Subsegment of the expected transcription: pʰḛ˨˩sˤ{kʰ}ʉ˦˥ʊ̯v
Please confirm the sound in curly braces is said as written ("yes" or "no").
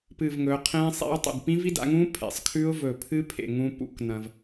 yes